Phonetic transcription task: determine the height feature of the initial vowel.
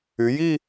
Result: high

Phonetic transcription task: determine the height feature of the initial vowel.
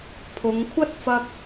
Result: high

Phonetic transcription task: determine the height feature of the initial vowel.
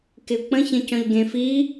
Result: high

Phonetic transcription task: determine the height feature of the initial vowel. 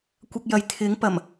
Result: low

